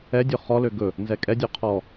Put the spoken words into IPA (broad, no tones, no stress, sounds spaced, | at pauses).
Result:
ɛ dʲ ɵ χ ɔ l ø ɡ ɵ | n z ɛ kʼ ɛ dʲ ø qʰ ɔ